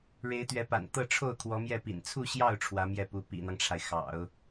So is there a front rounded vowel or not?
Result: no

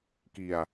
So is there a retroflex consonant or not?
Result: no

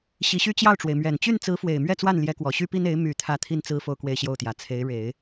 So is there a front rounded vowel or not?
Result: yes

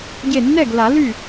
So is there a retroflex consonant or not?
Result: no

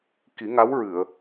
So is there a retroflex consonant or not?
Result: no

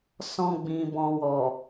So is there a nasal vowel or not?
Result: yes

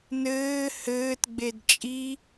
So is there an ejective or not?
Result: yes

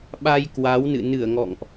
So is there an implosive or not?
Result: yes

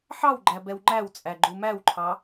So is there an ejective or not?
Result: yes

